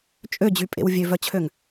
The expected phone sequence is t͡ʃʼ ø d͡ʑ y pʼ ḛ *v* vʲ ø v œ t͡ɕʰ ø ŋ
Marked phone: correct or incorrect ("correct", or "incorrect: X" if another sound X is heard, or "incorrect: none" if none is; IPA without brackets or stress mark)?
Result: incorrect: w